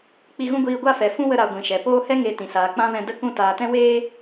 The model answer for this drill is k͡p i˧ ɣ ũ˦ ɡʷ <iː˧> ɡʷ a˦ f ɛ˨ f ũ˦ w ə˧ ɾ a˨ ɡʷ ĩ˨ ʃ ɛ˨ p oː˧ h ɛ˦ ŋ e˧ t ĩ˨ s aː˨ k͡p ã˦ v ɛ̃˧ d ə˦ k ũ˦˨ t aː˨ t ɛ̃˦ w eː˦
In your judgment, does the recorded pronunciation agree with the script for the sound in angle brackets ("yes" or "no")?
yes